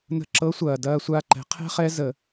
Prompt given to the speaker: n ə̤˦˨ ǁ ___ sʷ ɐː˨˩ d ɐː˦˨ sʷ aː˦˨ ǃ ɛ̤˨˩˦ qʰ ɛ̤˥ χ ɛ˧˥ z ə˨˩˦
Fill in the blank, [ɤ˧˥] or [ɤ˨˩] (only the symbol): ɤ˧˥